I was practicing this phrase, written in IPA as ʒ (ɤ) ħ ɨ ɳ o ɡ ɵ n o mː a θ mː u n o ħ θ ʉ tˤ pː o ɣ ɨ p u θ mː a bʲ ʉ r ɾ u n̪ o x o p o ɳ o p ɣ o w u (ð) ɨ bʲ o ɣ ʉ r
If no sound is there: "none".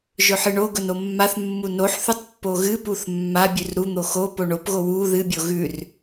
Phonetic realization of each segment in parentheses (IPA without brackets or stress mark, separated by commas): ɵ, ð